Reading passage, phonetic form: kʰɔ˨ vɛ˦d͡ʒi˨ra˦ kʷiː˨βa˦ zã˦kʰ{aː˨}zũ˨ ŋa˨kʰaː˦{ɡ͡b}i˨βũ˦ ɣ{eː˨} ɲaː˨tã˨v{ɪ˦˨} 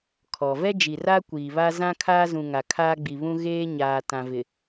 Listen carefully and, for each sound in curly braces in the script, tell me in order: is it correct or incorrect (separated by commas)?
incorrect, correct, incorrect, incorrect